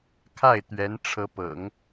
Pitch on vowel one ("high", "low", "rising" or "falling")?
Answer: falling